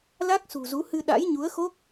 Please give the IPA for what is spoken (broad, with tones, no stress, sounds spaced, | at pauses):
l a˦˥ k̚ s ṳ˨˩ z u˨˦ h ɨ˧ ɗ a̰˧˥ j ɲ u˨˦ ə̯ x o˦˥ k̚